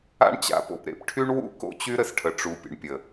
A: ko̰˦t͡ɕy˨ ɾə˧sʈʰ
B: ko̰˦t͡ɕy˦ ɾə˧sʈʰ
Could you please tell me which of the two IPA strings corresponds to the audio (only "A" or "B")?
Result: B